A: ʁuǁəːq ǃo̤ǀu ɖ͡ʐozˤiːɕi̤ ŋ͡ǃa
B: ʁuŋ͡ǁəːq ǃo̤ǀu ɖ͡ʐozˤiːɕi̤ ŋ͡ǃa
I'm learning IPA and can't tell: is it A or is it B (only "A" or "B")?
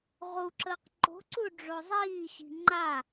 A